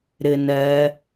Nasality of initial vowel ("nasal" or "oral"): oral